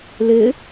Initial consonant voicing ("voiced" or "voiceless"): voiced